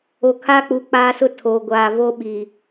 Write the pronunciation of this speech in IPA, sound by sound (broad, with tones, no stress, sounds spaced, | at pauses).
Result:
o˨ kʰ aː˦ k͡p u˨ k͡p aː˦ s ʊ˦ tʰ o˨ ɡʷ aː˨ v o˦ ɓ i˨